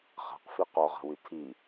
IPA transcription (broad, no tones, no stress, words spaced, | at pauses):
χa̤qfi qɔʁa̤wy tʰi